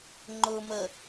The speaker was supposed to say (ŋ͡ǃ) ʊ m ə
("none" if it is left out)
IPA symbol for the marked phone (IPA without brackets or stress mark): ŋ͡ǃ